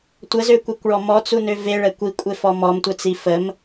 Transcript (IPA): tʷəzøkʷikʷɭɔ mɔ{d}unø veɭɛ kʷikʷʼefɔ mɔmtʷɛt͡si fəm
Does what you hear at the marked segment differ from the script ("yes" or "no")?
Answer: yes